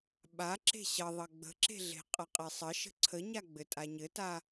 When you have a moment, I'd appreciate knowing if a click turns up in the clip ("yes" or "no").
yes